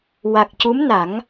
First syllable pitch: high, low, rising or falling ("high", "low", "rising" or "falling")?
low